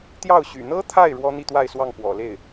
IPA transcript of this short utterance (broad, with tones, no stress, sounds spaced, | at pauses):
t̪ j ɑ˥˩ ʊ̯ ɕ y̰˨˩ n̪ ɤ˥ t̪ʰ a˥˩ ɪ̯ ɻ w ɔ˥ n̪ i˥˧ t̪ w a˥˧ ɪ̯ s w ɑ˥˩ ŋ p w ɔ̰˨˩ l e˥˩ ɪ̯